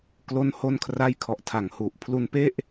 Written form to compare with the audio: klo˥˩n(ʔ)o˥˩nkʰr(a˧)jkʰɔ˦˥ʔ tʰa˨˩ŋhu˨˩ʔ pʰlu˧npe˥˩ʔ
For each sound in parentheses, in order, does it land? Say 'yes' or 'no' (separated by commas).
no, no